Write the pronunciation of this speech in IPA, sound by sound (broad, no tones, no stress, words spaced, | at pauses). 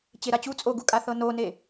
t͡ɕeɾat͡ɕu t͡sʼoɡukʼaθɤ none